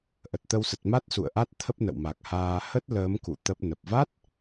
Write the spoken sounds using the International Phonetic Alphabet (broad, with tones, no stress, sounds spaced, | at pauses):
ʔ ə˨˩ t̚ t̪ ə˧ w s ə˨˩ t̚ m a˦˥ t̚ s ṵ˧˨ ə̯ ʔ a˦˥ t̚ t̪ʰ ə˦˥ p̚ n ə̰˧˨ w m a˨˩ k̚ h aː˧ h ə˦˥ t̚ l əː˨˦ m k ṵ˧˨ t̪ ə˦˥ p̚ n ə˨˩ p̚ v a˦˥ t̚